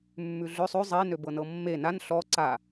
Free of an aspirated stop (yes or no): yes